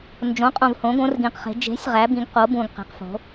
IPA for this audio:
n d͡ʒ õ˩˥ qʼ õ˨ v h õ˩˥ ɡ õ˩˥ r ɡ ĩ˨ q χ e̤˩˥ d͡ʒ e̤˩˥ sʲ ʁ æ˩˥ b ĩ˩˥ ɡ q o˩˥ b ũ˨ ɡ q e̤˩˥ q f o̤˩˥

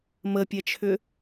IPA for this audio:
m ə pʲ ɛ t͡ʃʰ ʏ

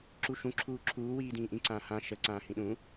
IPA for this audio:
ǁ u ʃ ũ ǁʰ uː ǁʰ uː w iː d ĩː ʔ ĩ ǀ ãː h ã ʃ ə ǀ ãː h ĩ ɗ ũ

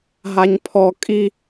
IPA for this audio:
ɦ a ɲ pʰ ɔ kʼ i

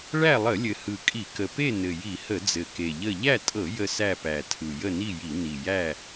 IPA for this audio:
ɭ æ˥˨ lˠ ə˧˩˧ lʲ ɘ˨˩ h ɯ˨˩ kʼ i˧˩˧ k ə˨˩ p e˥˨ n ɘ˨˩ j i˧˩˧ h ə˧˩˧ d͡z ɘ˨˩ k e˨˩ ʎ ə˥˨ ʎ æ˥˨ tʼ ɤ˧˩˧ j ə˥˨ s æ˥˨ p æ˨˩ tʰ ɯ˨˩ j ə˥˨ n i˥˨ j i˧˩˧ n i˨˩ j æ˥˨

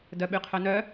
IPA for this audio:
d œ ɓ y qʰ œ n œ

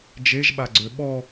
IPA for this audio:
d͡ʒ e ʒ ɓ a ɡ͡ǀ ø ɓ ɔ

